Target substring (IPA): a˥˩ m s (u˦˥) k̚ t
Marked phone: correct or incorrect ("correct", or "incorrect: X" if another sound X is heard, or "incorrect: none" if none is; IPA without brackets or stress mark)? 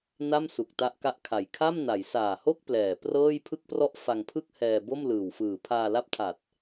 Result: incorrect: u˨˩